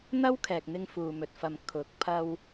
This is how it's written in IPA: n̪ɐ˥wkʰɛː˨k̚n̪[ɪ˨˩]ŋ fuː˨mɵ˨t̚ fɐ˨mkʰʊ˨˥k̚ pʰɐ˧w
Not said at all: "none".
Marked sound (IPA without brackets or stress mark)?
ɪ˧